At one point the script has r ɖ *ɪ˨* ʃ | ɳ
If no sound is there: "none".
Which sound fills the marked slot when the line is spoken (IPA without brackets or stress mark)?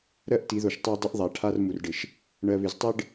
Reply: ɪ˨